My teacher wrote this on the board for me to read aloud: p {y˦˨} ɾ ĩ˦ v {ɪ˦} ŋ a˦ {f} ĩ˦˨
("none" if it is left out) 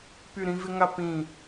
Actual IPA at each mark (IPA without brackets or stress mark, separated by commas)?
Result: y˦˨, ɪ˦, p